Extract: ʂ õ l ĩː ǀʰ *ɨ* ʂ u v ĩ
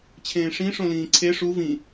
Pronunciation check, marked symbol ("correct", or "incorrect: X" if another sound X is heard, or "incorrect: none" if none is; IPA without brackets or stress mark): incorrect: e